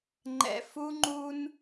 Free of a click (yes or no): no